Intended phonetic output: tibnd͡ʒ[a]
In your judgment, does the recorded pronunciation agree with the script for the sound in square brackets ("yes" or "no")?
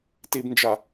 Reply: yes